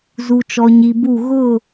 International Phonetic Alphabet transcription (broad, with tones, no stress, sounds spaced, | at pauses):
z u˨ t͡ʃ ɔ˨ ɲ i˨ b u˦˨ ɣ ʊ˦˨